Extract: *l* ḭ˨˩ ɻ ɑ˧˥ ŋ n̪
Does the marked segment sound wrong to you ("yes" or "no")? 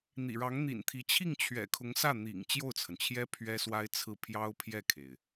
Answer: yes